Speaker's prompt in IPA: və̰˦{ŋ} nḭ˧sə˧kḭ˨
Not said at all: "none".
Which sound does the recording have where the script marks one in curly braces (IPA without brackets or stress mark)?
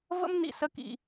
m